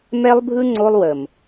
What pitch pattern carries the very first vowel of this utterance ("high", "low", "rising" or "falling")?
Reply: high